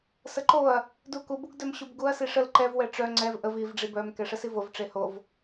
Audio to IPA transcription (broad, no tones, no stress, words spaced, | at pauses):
səǃoɐ̯ | duku buɡdœmɕubɡuɐ̯ siʂəl ǃɛv wɛʈ͡ʂœ ŋ͡ǀɛv ʔəv iv ɖ͡ʐibœm kɛʂəsivov ʈ͡ʂehov